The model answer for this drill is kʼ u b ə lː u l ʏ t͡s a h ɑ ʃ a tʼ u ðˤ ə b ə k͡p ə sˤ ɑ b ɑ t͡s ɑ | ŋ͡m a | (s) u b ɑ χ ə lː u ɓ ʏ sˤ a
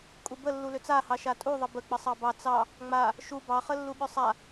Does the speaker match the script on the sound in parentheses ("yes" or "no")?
no